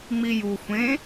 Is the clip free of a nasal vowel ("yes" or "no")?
no